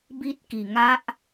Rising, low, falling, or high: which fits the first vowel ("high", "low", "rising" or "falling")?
high